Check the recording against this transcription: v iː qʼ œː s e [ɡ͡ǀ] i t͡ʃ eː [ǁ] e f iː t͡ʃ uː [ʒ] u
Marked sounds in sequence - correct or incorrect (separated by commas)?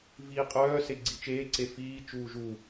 correct, incorrect, correct